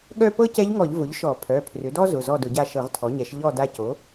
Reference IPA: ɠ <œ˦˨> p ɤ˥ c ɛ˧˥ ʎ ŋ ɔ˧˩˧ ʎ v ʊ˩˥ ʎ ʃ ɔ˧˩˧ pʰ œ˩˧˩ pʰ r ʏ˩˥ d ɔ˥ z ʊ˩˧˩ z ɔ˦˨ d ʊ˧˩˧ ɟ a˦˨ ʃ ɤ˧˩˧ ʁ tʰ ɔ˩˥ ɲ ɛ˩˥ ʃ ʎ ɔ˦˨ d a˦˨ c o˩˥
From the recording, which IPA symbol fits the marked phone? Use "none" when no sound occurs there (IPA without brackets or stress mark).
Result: œ˦˨